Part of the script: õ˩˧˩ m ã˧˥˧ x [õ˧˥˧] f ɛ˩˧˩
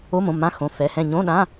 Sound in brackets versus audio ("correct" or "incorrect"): incorrect